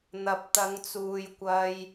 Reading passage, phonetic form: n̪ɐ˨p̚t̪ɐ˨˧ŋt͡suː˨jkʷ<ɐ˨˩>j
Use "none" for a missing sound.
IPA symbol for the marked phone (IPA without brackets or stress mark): ɐ˧